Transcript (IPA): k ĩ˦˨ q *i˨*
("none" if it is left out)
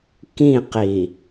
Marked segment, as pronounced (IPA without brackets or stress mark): i˨